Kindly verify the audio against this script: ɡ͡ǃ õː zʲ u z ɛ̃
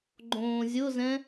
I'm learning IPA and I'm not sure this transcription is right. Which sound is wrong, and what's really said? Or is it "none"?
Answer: u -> ʊ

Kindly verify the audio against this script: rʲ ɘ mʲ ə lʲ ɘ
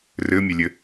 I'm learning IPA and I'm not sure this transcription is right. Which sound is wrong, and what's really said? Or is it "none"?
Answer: rʲ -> r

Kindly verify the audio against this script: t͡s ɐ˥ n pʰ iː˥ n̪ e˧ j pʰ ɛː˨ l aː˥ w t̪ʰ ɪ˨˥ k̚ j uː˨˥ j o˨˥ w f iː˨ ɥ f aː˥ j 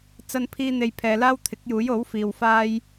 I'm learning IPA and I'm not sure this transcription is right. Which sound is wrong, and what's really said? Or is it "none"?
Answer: ɥ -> w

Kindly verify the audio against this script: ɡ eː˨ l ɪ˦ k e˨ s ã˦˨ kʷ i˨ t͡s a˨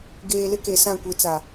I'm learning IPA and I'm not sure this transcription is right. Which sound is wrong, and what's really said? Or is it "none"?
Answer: none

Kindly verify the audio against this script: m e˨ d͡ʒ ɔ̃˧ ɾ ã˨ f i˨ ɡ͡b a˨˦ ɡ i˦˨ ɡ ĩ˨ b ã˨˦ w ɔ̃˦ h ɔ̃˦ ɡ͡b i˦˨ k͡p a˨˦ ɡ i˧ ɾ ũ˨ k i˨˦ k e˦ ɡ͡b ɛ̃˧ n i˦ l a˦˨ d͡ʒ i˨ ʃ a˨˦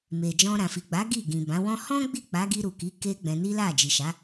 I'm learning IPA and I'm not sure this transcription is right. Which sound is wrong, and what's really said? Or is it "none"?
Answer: ũ˨ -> u˨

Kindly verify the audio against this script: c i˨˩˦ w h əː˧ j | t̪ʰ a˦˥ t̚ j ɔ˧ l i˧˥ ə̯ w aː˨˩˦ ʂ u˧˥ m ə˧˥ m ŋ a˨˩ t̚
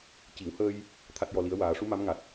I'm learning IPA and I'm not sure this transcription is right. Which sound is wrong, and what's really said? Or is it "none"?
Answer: ə˧˥ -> a˧˥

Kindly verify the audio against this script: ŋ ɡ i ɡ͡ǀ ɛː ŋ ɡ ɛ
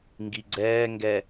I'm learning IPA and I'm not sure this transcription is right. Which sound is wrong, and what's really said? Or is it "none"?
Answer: none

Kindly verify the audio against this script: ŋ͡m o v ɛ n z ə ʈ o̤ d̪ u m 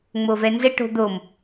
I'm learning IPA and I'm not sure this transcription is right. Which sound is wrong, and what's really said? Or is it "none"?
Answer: u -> o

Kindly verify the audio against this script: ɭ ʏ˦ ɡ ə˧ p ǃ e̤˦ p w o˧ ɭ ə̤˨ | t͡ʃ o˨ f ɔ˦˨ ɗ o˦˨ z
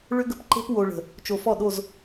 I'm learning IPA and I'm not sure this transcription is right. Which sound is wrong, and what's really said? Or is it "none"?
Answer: none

